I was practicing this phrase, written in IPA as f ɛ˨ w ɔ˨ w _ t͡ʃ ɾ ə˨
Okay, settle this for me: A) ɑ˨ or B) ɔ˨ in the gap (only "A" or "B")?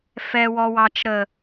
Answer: A